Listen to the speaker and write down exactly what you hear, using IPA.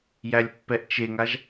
j æ lʲ pː ɛ ʔ t͡ʃ e ŋ a ʒ

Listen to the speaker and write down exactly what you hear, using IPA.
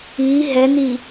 i ɦ ɛ n i

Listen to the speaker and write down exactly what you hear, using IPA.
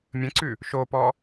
mʲ ə̃ ǀ ʉ | ʃ o p ɔ

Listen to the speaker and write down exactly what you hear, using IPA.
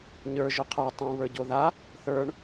ɲ ə˞ ʒ ɵ qʰ ə˞ tˤ ũ β ə˞ ɟ o ð a | θ ə˞ ɳ

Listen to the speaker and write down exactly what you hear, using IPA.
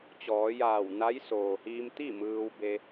t͡ɕ ɔː˩˧ j aː˧˩ w n a˧˥ j s oː˩ h iː˧ m t̪ i˥˨ m ɯː˧ w b e˧

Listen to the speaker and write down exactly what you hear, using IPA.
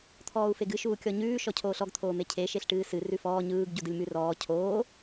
t̪ʰ ɔː u̯ f e ɡ ɨ ʃ uː kʲ ɔ ɲ ʉː ʃ ɔ cʰ oː ɬ ɔ ɡ t̪ʰ oː m e cʰ e ʃ e ɬ ʈ ɨː s ɨ r ʉ f ɔː ɲ ɯː ɡ ɟ u d ɯ lʲ m ʉ r ɔː cʰ oː

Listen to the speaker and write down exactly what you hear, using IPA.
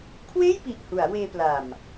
kʰ w eː˥˩ j p i˨˩ ʔ h u˩˦ a̯ w eː˧ p l a˨˩ m

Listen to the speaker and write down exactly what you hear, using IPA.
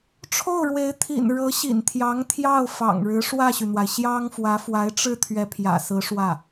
ʈ͡ʂʰ o˥˩ ʊ̯ ɻ w e˧˥ ɪ̯ t̪ʰ ḭ˨˩ n ɻ ɤ˧˥ ɕ ḭ˨˩ n t̪ʰ j ɑ˧˥ ŋ t̪ʰ j ɑ˥˩ ʊ̯ f ɑ̰˨˩ ŋ ɻ ɻ̩˧˥ ʂ w ä˥˩ ɕ y˩ n̪ w a˩ ɪ̯ ɕ j ɑ˥ ŋ f w ä˧˥ f w a˧˥ ɪ̯ ʈ͡ʂ ɻ̩˥˩ t̪ʰ ɥ ɛ˧˥ pʰ j ä̰˨˩ s ɹ̩˧˥ ʂ w ä˥˩

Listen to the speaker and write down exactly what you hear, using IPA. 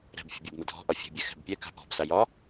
ɾ ɛ̤ b fʲ ə̤ bʲ ɛ b n ə dʱ ɔ̤ ʔ ɒ fʲ e̤ bʲ ɛ x ɛ̤ b pʲ ɛ k a̤ ʔ ɔ̤ b s a j ɒ

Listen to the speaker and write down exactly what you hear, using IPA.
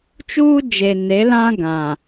t͡ʃ uː˦ d͡ʒ e˨ n e˨˦ l ã˦ ɡ ã˨

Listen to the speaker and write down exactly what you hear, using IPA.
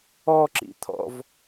ɔ ǁ ḭ t̪ʰ ɔ̰ v

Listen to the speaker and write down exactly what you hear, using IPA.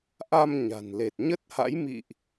ʔ a˧ m ɲ a̤˨˩ n l e˨˩ t̚ ɲ ə˦˥ t̚ h a̰˧˥ j m ḭ˧˨ ʔ

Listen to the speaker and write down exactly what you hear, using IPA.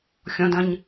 xʲ ɔ̃ d ɐ̃ ɲ

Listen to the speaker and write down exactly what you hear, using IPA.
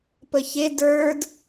p ə ç e d ə˞ d

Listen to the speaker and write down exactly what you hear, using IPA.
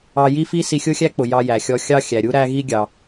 ɑ˧ j i˥ f i˥ s i˧ xʲ ʊ˥ xʲ æ˥ k͡p ʊ˩ j ɑ˧ j æ˩ xʲ ɔ˧ xʲ ɑ˥ xʲ æ˩ ɾʲ u˥ ɾ æ˥ ɣ i˥ ɡʲ ɑ˩

